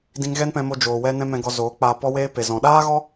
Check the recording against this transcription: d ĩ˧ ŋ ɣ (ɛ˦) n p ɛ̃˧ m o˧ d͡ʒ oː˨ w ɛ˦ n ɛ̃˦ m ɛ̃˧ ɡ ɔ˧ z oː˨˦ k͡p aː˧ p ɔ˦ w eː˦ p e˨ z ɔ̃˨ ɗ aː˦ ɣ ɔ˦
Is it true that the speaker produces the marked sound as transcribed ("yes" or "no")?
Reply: yes